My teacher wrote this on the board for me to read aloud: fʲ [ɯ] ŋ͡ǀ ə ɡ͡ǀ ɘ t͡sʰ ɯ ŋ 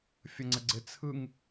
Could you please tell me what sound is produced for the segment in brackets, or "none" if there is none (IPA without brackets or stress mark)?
ə